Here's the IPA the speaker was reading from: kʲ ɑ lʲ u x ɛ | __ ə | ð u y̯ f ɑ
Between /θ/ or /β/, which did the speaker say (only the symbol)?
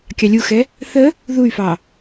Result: θ